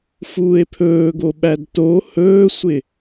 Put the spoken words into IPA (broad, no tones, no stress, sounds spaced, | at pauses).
f uː e̯ pʰ ɵː ɡ o ɓ æ d t o h ɵː sʷ ɪ